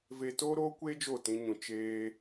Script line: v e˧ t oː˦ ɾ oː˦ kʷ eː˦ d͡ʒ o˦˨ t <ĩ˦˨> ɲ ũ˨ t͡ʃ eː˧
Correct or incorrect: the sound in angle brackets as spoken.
incorrect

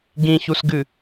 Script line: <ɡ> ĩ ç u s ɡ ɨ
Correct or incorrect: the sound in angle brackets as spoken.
correct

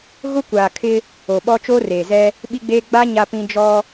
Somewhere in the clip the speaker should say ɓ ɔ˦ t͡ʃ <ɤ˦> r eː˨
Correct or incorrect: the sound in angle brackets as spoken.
incorrect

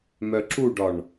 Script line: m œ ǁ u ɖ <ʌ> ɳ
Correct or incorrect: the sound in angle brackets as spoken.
incorrect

